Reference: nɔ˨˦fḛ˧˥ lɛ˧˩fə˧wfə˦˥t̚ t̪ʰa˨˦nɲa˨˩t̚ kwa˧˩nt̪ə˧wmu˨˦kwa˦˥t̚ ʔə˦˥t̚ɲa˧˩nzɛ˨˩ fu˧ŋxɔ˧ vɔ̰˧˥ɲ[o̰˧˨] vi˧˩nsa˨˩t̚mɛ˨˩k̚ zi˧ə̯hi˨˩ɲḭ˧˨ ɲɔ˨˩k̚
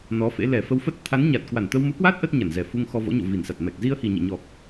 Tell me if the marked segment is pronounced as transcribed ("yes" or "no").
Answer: yes